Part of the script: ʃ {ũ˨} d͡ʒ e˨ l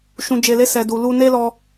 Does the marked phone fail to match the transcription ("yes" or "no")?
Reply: no